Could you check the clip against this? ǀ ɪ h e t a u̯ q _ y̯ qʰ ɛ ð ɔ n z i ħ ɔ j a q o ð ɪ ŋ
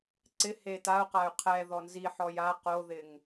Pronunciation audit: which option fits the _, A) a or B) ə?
A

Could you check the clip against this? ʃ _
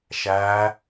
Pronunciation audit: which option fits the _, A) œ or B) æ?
B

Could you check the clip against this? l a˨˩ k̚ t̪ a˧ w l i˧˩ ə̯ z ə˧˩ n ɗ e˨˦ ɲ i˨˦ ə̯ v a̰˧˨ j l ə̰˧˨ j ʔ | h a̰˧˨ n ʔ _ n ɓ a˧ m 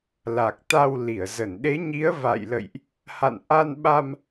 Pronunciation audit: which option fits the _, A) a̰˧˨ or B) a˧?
B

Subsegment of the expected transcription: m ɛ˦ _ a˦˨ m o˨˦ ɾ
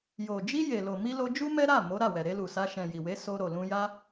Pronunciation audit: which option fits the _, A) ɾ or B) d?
A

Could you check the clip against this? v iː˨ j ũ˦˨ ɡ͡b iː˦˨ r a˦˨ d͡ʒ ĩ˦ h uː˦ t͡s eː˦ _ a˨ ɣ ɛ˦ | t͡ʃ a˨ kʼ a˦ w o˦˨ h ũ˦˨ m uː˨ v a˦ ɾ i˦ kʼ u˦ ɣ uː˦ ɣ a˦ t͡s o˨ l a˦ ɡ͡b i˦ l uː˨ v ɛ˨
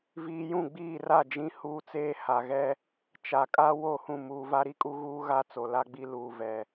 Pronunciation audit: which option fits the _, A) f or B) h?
B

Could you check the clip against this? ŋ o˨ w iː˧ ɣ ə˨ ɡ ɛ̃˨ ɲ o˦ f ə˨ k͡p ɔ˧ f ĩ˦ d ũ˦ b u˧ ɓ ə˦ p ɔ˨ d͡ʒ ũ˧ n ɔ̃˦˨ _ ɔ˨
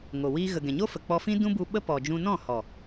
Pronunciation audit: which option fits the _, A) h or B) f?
A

